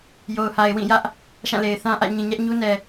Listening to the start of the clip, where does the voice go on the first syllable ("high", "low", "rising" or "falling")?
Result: low